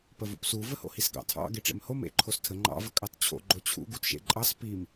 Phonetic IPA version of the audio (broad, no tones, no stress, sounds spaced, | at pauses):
p ə v ṵ p s u v ə h o̰ h i s ɡ ɑ̰ tʰ ɑ̰ ɡ e ʈ͡ʂ ḛ m h o m ḛ ǃʰ o s tʰ ə ŋ͡ǃ ɑ̰ v ə kʼ ɑ t t͡ɕʰ o̰ ɡ͡ǃ o t͡ɕʰ ṵ ɡ u t ʃ ḛ ǃʼ ɑ s p i m